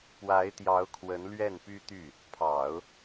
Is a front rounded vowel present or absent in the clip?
present